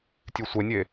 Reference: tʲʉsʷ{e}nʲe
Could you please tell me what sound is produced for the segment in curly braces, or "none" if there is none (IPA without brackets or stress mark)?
e